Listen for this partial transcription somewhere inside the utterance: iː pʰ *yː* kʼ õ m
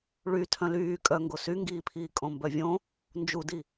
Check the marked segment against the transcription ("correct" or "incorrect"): incorrect